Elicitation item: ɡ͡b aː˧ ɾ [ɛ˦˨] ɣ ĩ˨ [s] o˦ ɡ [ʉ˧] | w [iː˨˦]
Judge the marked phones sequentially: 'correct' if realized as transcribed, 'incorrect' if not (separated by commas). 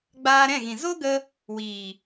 incorrect, incorrect, incorrect, incorrect